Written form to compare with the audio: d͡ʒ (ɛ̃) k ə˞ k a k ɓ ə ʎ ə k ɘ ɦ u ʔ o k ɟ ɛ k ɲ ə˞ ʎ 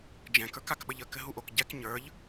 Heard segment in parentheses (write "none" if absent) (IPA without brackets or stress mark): ɛ̃